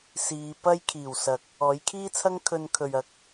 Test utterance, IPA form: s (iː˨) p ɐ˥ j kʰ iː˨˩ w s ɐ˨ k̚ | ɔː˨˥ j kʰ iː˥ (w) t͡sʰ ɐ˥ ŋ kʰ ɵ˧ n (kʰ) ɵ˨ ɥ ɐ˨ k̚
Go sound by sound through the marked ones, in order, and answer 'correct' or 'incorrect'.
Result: incorrect: iː˨˧, incorrect: none, correct

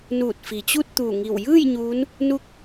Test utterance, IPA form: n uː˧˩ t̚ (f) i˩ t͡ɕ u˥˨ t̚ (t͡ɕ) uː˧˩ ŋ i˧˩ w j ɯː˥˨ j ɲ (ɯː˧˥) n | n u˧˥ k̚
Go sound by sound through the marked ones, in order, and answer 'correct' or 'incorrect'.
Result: correct, incorrect: t̪, incorrect: uː˧˥

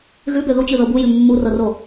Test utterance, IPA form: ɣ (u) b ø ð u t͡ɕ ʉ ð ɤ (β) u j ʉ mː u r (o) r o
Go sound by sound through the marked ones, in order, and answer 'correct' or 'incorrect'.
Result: incorrect: ʉ, incorrect: b, incorrect: ɤ

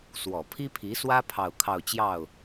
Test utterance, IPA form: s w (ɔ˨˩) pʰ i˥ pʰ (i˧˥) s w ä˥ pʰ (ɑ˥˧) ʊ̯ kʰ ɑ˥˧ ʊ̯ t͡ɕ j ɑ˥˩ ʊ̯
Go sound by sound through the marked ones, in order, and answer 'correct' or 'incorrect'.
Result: correct, correct, correct

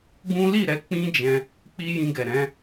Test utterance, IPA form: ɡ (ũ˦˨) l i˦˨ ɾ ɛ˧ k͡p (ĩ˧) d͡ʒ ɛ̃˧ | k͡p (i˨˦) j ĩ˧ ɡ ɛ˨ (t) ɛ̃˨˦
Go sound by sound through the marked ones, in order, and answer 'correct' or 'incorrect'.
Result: incorrect: ũ˦, incorrect: ĩ˦, incorrect: i˦, incorrect: ɾ

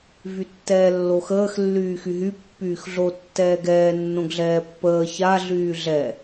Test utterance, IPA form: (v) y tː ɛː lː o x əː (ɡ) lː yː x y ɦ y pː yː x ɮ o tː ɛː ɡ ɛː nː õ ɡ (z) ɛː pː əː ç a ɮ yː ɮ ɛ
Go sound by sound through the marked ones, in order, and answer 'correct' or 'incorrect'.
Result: correct, incorrect: x, incorrect: ɮ

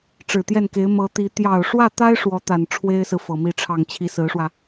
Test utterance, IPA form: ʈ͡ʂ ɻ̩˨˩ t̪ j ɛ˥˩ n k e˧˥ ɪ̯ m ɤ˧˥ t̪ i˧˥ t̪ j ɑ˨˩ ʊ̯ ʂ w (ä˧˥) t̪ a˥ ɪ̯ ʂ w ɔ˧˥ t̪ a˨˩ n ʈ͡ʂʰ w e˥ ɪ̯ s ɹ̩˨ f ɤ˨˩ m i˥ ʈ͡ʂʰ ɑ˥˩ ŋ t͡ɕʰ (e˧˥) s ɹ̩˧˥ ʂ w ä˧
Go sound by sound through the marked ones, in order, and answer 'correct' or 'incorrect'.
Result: incorrect: ä˥˩, incorrect: i˧˥

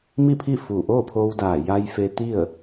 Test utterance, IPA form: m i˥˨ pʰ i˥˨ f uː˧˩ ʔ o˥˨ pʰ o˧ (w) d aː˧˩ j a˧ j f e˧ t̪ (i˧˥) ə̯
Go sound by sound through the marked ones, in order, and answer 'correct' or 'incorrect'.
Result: correct, incorrect: i˥˨

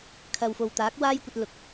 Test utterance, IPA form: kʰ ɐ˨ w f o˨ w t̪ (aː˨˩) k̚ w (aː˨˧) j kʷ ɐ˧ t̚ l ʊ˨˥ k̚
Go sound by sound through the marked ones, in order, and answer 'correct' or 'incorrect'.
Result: incorrect: aː˨˥, incorrect: aː˥

